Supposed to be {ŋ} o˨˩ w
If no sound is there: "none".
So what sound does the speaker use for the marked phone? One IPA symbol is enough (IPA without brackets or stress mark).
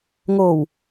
ŋ